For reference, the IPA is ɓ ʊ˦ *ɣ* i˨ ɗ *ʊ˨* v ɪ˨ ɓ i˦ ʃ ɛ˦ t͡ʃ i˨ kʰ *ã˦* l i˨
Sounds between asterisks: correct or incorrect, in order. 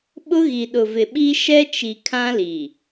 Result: correct, correct, correct

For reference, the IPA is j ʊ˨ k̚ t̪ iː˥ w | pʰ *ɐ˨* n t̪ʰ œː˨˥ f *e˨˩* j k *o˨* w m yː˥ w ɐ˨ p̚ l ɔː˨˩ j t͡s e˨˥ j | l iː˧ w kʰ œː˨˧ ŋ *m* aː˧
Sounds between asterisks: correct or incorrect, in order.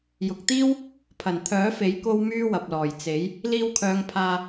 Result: incorrect: ɐ˨˩, incorrect: e˨˥, incorrect: o˥, incorrect: pʰ

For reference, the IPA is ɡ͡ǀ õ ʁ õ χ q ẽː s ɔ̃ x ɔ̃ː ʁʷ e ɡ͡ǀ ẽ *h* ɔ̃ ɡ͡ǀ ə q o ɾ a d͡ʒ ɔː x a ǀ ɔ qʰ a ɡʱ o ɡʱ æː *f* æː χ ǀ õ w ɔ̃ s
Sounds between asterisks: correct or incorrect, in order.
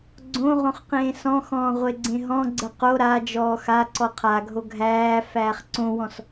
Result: incorrect: ɦ, correct

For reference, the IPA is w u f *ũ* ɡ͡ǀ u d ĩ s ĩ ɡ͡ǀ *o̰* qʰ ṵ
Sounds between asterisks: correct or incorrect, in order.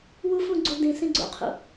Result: correct, correct

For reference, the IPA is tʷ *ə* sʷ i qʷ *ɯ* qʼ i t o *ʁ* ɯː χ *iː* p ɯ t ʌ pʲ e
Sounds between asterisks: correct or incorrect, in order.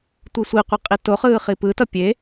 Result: incorrect: ɯ, correct, incorrect: χ, incorrect: i

